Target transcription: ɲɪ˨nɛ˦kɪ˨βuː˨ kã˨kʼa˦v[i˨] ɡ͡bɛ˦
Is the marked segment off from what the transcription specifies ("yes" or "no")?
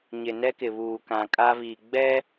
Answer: no